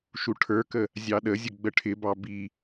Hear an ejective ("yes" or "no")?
no